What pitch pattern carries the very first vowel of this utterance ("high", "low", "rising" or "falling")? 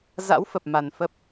rising